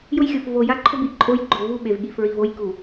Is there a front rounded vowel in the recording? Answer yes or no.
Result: no